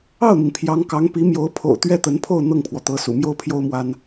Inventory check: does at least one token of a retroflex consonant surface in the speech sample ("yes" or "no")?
no